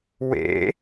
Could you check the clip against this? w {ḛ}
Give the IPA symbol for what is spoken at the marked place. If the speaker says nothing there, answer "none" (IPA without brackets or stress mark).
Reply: ḛ